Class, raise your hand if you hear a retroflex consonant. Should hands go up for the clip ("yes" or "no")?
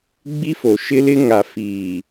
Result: no